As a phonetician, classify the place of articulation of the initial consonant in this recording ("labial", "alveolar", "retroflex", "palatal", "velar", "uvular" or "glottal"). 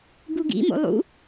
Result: velar